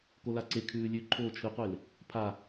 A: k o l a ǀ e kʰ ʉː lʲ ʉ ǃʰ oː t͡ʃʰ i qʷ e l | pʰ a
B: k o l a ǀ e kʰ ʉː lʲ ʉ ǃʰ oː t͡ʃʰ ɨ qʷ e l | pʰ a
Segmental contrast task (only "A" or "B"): B